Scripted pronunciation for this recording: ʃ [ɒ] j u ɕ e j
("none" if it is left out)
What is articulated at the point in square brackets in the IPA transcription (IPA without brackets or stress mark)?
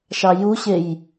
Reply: ɑ